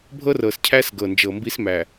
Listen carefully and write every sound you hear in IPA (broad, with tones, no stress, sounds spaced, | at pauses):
bʱ ɤ˦ r ɤ˨ s cʰ æ˦ s ɡ ɤ˨ n d͡ʒ ɤ˨ m b i˦ s m æ˨